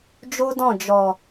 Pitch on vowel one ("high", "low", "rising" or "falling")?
high